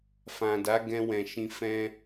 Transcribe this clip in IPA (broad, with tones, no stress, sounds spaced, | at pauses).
f ã˨ d a˨˦ ɡ ɛ̃˧ w ɛ̃˨ ʃ ĩ˧ f ɛ̃˧